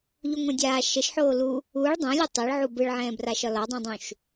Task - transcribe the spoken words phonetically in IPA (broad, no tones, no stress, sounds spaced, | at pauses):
ʎ u ŋʷ ɛ̃ dʲ aː ʃ ə ʃ ħ oː l u | u ɭ dˤ ɛ̃ lʲ ɯ tˤ ɛ ɭ ʕ u b ɯ ɭ ʕ ɛ̃ː b r a ʃ ɒ l ɒ dˤ ũ dˤ ũ ʃ